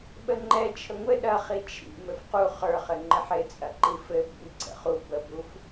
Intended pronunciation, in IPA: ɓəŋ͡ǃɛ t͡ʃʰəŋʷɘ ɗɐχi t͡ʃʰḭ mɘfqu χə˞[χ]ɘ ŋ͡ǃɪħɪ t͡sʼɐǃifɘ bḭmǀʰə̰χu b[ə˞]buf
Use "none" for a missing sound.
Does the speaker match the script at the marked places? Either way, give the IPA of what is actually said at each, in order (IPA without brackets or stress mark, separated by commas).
χ, ə